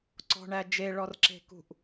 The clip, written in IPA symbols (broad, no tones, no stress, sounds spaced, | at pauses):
ǀ ɔ̤ ɳ æ d͡ʒ e ɭ ɔ r ǁ e̤ k ṳ ʔ